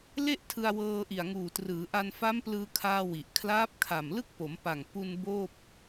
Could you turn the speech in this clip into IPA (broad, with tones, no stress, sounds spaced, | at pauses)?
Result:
l e˥˩ ʔ tʰ ɯ˧ a̯ w ɤː˧ ʔ i˨˩ a̯ ŋ uː˨˩ t r ɯː˩˦ ʔ a˧ n f a˦˥ m p l ɯː˧ kʰ aː˧ w i˨˩ ʔ kʰ l aː˦˥ p̚ kʰ a˨˩ m l ɯ˥˩ k̚ p o˩˦ m p a˨˩ ŋ p u˧ n b oː˥˩ p̚